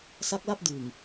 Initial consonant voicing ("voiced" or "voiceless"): voiceless